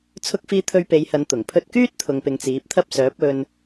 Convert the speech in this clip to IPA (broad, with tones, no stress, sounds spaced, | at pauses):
t͡sʰ ʊ˥ k̚ f iː˥ t̪ʰ ɵ˧ ɥ p e˨˧ j h ɐ˨˧ n t̪ ʊ˨˩ ŋ pʰ ɵ˧ t̚ k yː˥ t̚ t̪ʰ ʊ˨ ŋ p ɪ˨ ŋ t͡s iː˨˥ p̚ t̪ʰ ɐ˥ p̚ s œː˨˥ p̚ ɵ˧ n